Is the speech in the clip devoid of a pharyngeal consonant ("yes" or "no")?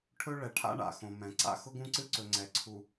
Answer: yes